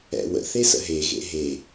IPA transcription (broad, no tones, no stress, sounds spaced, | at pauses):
ɛ̰ w ə̰ θ e s ə̰ ɦ e ɣ ḛ ɦ e